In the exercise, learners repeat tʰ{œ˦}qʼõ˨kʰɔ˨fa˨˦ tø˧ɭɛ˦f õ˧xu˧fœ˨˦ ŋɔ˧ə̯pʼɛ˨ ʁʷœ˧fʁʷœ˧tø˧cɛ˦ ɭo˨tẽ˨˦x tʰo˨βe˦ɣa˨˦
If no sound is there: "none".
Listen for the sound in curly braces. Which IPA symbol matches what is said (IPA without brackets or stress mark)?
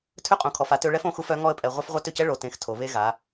ø˦